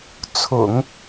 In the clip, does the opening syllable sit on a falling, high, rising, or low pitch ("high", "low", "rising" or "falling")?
low